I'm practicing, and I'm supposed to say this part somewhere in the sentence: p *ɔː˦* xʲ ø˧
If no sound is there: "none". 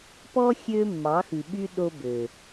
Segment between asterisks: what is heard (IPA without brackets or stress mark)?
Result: ɔ˦